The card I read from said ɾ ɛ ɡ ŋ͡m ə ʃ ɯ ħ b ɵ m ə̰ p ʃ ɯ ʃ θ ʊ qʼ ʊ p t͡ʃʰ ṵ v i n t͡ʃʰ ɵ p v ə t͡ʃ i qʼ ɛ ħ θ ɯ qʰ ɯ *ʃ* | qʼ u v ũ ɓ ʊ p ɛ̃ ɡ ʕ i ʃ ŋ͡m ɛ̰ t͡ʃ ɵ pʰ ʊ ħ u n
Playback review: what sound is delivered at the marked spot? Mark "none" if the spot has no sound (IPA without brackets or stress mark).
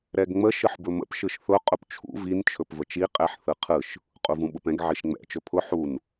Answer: ʃ